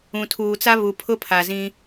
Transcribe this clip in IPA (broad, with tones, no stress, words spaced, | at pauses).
ũ˨tʰuː˨t͡sa˦ βu˨pʰʊ˦pʰa˨zĩ˦